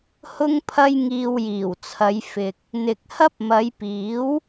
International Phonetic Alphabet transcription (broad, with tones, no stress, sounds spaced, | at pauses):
h ʊ˧ ŋ pʰ ɐ˧ j ŋ iː˧ w j iː˨˩ w t͡sʰ ɐ˨˧ j f ɪ˨ k̚ | n̪ ɪ˨ k̚ h ɐ˥ p̚ m ɐ˨˧ j p iː˨˥ w